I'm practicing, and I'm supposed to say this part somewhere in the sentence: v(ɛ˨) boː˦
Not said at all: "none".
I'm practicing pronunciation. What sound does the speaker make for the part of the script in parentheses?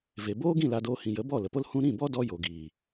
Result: e˨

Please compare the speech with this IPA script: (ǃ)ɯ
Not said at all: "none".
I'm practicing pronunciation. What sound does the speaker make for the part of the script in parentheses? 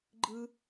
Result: ɡ͡ǃ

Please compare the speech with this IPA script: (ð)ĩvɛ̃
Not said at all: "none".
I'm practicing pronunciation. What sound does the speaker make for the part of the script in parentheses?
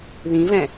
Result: ð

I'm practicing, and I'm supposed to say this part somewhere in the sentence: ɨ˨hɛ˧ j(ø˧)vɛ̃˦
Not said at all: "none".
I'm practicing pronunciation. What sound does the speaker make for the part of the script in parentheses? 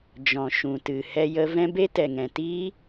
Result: ə˧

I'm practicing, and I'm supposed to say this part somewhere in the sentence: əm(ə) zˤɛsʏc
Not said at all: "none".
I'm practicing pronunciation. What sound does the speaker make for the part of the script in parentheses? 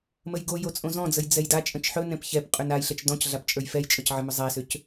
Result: ʏ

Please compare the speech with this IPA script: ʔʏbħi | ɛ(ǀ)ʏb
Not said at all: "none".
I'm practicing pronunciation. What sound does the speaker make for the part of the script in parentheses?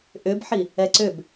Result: ǀ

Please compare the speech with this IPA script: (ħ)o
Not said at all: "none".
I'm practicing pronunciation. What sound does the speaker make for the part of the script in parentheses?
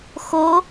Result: x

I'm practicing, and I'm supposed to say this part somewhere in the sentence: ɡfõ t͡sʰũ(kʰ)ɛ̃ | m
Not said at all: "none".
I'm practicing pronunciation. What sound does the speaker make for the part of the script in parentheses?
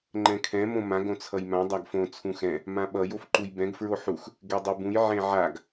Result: x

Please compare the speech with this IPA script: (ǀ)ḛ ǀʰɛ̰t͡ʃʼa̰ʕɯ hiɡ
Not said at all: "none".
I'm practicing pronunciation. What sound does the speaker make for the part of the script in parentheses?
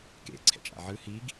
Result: k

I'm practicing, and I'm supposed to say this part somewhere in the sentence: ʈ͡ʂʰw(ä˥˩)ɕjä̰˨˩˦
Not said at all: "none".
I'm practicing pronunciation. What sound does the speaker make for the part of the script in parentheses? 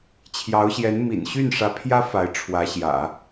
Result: ä˧˥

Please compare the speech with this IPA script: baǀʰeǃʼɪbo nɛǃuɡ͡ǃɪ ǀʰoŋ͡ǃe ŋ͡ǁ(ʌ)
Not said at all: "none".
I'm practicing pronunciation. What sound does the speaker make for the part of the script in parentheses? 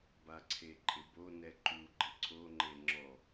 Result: ɔ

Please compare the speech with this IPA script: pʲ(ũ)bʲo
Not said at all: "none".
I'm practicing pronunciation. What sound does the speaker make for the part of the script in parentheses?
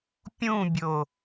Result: ũ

